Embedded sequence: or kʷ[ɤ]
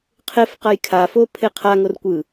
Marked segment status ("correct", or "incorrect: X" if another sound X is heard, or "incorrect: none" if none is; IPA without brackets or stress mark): incorrect: ɯ